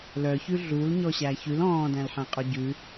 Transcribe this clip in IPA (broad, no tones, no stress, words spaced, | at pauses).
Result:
lœçʉ ɮul ɲɔɕæçʉl ɔ̃ːdæ̃lħɛ̃ qʼœɟʉ